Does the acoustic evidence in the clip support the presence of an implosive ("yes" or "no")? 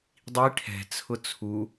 no